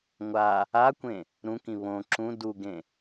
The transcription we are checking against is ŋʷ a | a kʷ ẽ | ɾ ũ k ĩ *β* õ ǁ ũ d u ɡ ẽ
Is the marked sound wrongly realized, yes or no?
no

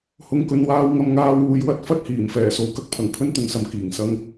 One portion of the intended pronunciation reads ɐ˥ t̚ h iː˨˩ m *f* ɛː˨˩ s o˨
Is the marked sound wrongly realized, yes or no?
no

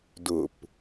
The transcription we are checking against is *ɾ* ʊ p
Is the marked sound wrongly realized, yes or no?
yes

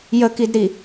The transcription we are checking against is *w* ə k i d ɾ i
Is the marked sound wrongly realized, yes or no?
yes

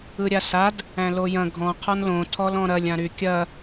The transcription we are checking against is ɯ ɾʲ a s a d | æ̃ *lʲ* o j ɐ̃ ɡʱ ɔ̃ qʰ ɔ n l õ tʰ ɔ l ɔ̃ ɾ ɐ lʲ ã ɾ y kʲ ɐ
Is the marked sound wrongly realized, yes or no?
yes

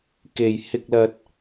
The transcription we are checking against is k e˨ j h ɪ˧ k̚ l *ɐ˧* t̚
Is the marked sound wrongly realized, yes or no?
no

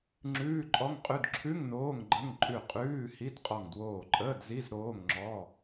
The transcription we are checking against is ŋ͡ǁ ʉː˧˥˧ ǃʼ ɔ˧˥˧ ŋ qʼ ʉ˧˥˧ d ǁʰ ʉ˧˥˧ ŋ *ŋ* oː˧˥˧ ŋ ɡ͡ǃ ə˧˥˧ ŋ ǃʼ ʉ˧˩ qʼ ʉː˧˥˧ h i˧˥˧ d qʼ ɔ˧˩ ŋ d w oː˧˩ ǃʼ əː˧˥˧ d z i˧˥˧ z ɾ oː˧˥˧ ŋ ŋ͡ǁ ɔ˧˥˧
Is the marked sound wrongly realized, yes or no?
yes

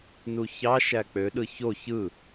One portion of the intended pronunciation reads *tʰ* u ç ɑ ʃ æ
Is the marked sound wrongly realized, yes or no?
yes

